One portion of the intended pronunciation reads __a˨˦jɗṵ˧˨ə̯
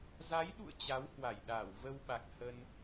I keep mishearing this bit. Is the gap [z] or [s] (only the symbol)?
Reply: z